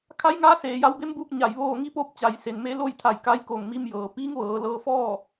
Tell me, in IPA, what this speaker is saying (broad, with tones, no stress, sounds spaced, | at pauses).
kʰ a˧˥ j ŋ aː˧˥ s eː˩ j a˧ w b e˧˥ m b uː˧ k̚ ɲ a˧˩ j ʋ oː˥˨ ŋ i˧˥ p o˧ p̚ t͡ɕ a˩ j s e˩ n m e˧ l o˥˨ j t̪ʰ a˧˩ j k a˧˥ j k o˧˩ ŋ m i˧ m j ɤː˩ p iː˧˥ ŋ ʋ ɤː˩˧ l ɤː˧ f ɔː˥˨